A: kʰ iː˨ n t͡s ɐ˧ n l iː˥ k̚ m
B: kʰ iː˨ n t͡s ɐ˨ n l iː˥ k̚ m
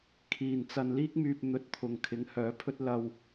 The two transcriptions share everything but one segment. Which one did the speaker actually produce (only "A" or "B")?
A